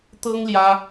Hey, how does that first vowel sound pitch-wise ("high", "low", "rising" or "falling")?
high